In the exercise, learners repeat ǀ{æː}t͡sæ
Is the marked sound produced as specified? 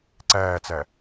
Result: yes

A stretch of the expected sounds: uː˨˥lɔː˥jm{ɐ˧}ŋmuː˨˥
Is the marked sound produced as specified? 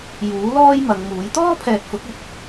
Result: no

